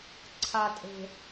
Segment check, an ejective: present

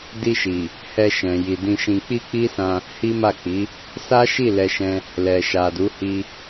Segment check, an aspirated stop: absent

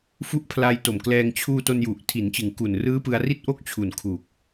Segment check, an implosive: absent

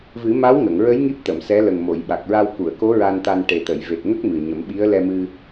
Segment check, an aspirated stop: absent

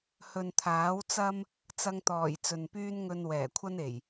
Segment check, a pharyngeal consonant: absent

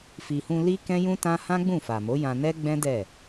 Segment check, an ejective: absent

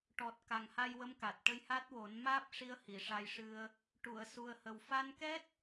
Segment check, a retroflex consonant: present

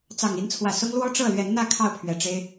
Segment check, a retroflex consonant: present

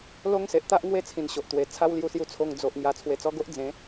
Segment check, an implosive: absent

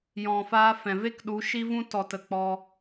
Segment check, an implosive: present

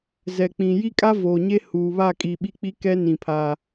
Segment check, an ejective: present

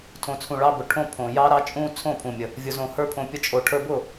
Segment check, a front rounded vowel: absent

